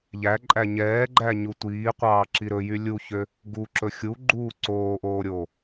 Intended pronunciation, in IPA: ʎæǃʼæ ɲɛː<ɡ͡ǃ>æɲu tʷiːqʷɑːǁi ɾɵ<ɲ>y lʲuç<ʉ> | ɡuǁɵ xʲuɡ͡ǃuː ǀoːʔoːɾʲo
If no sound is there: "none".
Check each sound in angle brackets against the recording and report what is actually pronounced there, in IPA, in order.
ɡ͡ǃ, j, ø

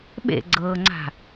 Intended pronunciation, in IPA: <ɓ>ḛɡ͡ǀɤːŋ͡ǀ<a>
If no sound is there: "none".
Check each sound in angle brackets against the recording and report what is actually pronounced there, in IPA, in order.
ɓ, a̤

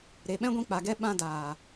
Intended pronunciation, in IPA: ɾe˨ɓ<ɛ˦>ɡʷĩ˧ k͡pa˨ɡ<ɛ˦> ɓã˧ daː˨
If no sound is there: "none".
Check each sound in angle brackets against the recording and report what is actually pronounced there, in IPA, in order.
ɛ̃˦, ɛ˦

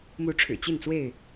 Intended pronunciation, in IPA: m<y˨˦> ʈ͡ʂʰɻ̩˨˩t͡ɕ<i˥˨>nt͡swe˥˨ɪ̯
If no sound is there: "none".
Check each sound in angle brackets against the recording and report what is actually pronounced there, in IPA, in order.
u˨˦, i˥˨

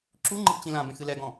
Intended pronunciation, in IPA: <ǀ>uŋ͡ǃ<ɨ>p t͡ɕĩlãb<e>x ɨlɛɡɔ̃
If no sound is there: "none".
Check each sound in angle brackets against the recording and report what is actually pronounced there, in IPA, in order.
ǁ, ɨ, ẽ

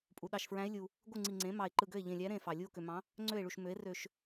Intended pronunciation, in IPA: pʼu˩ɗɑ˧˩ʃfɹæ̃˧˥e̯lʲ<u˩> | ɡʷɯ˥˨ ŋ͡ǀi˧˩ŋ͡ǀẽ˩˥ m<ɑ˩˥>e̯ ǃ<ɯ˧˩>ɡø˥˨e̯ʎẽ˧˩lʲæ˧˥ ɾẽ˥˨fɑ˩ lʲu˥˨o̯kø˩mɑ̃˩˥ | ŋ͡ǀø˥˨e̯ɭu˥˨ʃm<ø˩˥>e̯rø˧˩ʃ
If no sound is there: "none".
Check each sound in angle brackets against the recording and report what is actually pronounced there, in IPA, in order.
u˩, ɑ˩, ɯ˧˩, ø˩˥

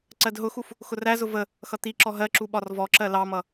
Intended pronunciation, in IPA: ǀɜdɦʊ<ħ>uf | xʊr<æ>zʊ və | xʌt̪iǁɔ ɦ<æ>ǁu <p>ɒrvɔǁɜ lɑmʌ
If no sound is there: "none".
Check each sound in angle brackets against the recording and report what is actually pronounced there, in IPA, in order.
x, æ, ɜ, ɓ

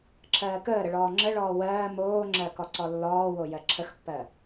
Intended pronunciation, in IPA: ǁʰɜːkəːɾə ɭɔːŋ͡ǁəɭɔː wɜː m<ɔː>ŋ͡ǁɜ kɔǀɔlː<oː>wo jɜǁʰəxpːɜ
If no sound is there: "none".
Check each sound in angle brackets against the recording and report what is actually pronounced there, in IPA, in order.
oː, ɔː

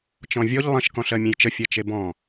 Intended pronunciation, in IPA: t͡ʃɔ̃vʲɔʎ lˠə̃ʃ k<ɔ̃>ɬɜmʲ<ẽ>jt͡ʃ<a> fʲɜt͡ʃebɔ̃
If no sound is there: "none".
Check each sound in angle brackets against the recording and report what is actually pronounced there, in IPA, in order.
ɔ̃, ẽ, ə

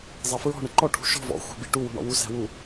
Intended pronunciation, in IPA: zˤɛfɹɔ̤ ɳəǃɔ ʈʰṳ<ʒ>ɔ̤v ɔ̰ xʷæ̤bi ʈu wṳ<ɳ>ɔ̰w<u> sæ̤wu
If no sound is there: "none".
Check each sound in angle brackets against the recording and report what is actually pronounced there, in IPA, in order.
ʃ, ɳ, u

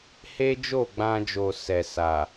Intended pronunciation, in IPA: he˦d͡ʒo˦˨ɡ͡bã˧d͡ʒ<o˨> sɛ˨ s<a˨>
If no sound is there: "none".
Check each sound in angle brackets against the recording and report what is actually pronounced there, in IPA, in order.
o˨, a˨

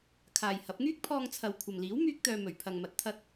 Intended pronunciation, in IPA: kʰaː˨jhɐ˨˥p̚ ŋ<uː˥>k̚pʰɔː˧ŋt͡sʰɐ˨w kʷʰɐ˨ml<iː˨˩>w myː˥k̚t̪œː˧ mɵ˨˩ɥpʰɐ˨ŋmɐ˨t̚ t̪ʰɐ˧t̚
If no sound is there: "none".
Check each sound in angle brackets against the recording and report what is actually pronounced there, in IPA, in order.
yː˥, iː˨˥

